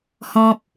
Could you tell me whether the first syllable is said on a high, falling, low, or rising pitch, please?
high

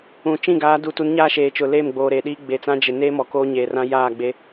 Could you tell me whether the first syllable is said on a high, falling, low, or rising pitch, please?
low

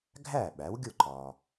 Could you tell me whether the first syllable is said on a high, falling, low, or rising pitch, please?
falling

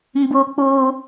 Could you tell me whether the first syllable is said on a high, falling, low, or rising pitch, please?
high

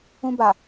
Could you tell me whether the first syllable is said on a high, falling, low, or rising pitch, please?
high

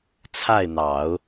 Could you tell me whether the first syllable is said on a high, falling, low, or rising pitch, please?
falling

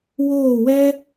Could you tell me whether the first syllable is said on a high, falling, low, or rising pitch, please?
falling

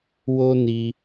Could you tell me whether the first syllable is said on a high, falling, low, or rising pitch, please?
high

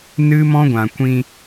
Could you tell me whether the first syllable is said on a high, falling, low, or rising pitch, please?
high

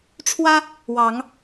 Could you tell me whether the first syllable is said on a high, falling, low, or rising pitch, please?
high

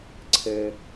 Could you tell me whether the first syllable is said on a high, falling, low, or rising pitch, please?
low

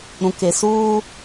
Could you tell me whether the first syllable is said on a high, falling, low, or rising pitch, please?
low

